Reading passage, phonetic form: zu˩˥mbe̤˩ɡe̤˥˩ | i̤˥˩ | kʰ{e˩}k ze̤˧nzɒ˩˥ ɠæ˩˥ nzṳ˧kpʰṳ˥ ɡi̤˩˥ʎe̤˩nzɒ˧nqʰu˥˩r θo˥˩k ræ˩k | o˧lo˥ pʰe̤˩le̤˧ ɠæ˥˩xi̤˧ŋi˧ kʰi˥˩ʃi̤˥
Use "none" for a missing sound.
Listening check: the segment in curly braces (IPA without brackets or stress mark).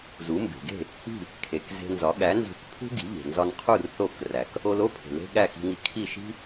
e˩